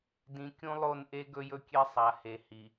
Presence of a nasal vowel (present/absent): present